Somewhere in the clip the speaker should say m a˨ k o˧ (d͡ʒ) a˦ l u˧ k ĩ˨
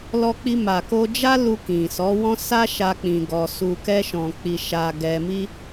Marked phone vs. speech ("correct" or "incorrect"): correct